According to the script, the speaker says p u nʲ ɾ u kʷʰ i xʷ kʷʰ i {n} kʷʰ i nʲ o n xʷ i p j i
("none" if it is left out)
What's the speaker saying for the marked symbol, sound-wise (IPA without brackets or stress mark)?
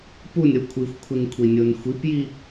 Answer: n